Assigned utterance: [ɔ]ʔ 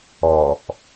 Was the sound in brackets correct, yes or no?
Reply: yes